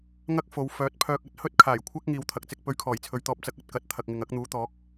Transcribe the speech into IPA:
ŋ ɐ˥ k̚ f o˨˧ w f œː˨˥ t̚ pʰ œː˧ k̚ ɐ˥ t̚ h ɵ˥ t̚ kʰ aː˨˩ j kʷʰ ɐ˥ k̚ ŋ iː˨ w t̪ʰ ɐ˨ k̚ t͡s ɪ˧ k̚ p ɵ˧ ɥ kʰ ɔː˨˩ j t͡sʰ ɵ˨ ɥ t̪ ɔː˧ p̚ t͡s ɐ˧ k̚ ɐ˧ t̚ k ɐ˨˥ t̚ t̪ʰ ɐ˨ k̚ ŋ ɪ˨ ŋ ɐ˨˥ k̚ n̪ uː˨˥ t̪ ɔː˨˥ k̚

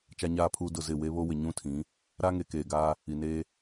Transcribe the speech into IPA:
t͡ʃ a˨ ɲ aː˨ pʰ uː˨ d ʊ˦˨ z ɪ˦˨ w e˦ β o˦ w ɪ˨ ɲ ũ˦ tʰ ĩ˨˦ | ɾ a˦ ŋ e˨ k eː˨ ɡ aː˦ | i˨ n eː˦

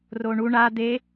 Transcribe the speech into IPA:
r o ɳ u ɳ a d̪ e

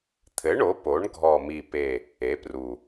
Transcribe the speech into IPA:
t̪ʰ ɘ˩˥ ɳ o˩˥ p o˩˥ ɳ ɡʱ ɔ˨˩ m i˨˩ p e˨˩ | e˩˥ p r u˨˩

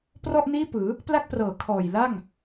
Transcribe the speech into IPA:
p r ɔ˥˩ ʔ n iː˥˩ p ɯː˩˦ | p l a˥˩ k̚ p r ɤː˩˦ kʰ ɔː˨˩ j l a˥˩ ŋ

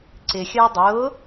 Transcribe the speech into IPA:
ǀ ɪ xʲ əː dˤ ʊː

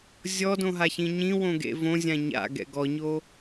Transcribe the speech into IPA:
zʲ ɔ d õ ɦ a ç ĩ ɲ ĩ w õ ɡ ḛ v õ zʲ ã ɲ a̰ ɡ ɛ̰ ɡ ɔ ɲ o

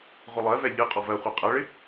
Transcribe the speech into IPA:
ʁʷ ɪ lˠ ɜ v ɛ ʎ ɨ qʼ ɔ v ɜ χʷ a qʼ ɜ ɭ ɪ

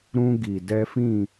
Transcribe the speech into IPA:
ɾ ũ˦ ɡ i˨ d ɛ˦ f ĩ˦˨

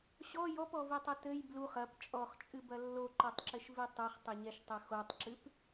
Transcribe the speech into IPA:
ɕ ɔ j ɔ p ɔ v i tˤ ɐ t ɘ j b l u χ ɐ p t͡ʃʼ ɔ χ t͡ʃʼ ɨ b ɐ lː o ǃ o tˤ ǁ ɘ ʃ v i tˤ o χ tˤ ɘ ɲ ɛ ʃ tˤ ɐ x o tˤ ǁ ɨ p

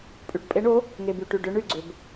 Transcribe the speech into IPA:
pʼ y˨ ʈ pʼ e˨˥ ɳ o˨˥ | ŋ e˨ b y˨ ʈ y˨ ɖ ʏ˨˥ ɳ y˨ ɡ͡ǀ ʏ˨ b

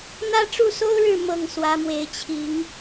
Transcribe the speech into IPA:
n̪ ä˦ ʈ͡ʂ u˥˨ s o˦ ʊ̯ ɻ ɻ̩˥˨ m ɤ˥˨ ŋ s w ä˨˦ m w e˨˦ ɪ̯ t͡ɕʰ i˨˦ ŋ

